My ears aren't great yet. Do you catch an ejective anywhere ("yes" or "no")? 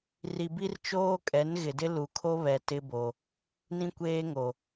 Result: yes